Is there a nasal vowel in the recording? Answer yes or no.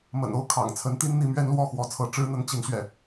no